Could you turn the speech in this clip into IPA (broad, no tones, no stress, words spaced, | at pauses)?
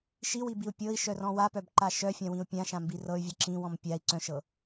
ʃiwibiu̯ pʲɤi̯ʃœrɔ̃ wapœbǃa ʃœfʲãwĩu̯ pʲãʃãmbi rɤy̯vʲɯ ǁĩwɔ̃m pʲai̯ ǀœ̃ʃɤ